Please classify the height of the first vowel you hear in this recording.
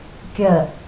mid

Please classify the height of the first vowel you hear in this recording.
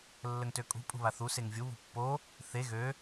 mid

